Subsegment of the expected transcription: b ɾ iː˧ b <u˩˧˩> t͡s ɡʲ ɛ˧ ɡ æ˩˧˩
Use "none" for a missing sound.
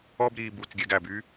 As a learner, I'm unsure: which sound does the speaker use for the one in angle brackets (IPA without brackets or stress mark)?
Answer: u˩˧˩